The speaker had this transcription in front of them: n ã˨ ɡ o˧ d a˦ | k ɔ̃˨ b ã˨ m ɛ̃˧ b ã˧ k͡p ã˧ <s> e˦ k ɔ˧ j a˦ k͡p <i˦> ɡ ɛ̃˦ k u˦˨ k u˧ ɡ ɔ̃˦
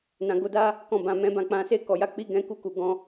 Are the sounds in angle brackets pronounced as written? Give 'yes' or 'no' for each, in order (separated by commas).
yes, yes